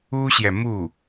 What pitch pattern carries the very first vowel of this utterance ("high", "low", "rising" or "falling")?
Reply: high